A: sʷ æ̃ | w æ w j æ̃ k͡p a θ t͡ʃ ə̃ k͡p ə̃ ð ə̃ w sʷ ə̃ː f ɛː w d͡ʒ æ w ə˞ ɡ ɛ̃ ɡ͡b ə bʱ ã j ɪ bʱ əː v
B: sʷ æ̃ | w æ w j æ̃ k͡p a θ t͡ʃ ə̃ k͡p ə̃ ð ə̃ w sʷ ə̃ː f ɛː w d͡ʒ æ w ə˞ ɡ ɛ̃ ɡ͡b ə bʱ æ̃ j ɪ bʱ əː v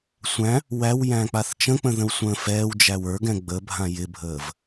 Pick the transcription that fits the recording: A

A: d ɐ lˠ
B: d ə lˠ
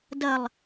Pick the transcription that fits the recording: A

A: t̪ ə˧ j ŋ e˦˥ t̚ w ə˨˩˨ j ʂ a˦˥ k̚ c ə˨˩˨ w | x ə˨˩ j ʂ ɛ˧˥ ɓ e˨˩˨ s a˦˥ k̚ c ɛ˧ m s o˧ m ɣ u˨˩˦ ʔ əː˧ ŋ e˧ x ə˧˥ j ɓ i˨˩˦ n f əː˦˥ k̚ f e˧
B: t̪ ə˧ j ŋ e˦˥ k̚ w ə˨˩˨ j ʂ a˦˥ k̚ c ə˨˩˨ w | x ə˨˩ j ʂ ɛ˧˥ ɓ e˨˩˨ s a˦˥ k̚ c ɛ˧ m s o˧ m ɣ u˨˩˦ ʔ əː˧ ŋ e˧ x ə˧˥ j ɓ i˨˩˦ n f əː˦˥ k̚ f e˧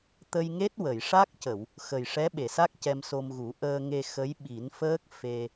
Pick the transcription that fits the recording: A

